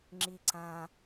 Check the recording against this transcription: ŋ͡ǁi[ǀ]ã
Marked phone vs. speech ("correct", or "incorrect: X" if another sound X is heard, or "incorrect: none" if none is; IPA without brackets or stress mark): correct